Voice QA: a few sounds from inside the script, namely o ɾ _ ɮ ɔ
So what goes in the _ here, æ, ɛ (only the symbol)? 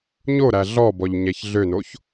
æ